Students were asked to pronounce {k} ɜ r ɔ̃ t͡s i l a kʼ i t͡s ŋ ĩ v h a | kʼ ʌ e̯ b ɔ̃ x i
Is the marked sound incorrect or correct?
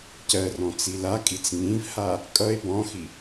incorrect